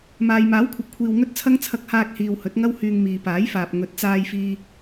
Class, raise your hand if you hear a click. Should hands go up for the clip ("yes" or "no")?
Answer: no